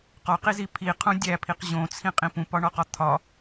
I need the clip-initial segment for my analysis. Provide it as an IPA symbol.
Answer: q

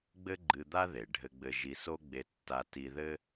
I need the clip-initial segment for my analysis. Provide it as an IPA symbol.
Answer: ɡ͡b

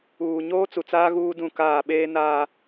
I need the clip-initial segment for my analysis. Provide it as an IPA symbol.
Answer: uː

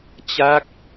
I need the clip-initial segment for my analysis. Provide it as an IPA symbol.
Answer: t͡ɕ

